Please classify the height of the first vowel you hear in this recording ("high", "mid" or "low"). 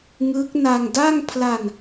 high